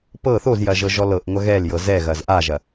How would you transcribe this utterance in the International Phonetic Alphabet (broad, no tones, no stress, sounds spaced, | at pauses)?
p ɤ θ o z j ɐ ʒ ɤ ʒ ɔ l ɤ ʔ ŋʷ ɐ ɣ ɛ l j ɤ z ɛ ɣ ɐ z ʔ a ʒ ɐ